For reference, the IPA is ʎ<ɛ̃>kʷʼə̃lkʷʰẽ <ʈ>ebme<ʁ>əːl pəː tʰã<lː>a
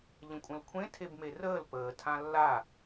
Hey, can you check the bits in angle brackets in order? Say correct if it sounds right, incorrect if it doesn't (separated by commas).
incorrect, incorrect, incorrect, correct